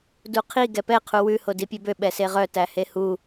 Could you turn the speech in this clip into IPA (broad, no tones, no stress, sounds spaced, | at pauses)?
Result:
d u qʰ i ɡ ɛ p ɛ qʰ u w ʉ h o d i pʲ e b ø ɓ ɛ s e ʁ œ t æ h e h u